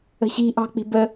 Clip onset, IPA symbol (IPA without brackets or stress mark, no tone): ə̤